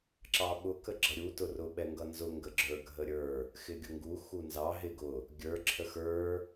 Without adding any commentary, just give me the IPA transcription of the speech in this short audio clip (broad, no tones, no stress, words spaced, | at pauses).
ǁɑɓʊ kəɡ͡ǁʌɾʲu tʊrʊ ɓɛŋɡʌnzʊ ŋɡəɡ͡ǁə˞ ɡʱəɾʲə˞ | xɪɡʲʊŋɡu xunzɑ ɦɪ ɡʊ | ɡʲə˞ ǁʰəxə˞